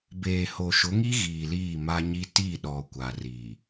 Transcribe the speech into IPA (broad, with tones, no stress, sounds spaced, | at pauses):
b eː˨ h o˨ ʃ ʊ˨˦ ŋ i˦ ɣ iː˨ l iː˦˨ m a˦ ɲ i˦ t i˦˨ ɗ ɔ˨ kʷ a˨ r iː˨